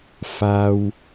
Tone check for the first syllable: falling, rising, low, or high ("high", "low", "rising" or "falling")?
low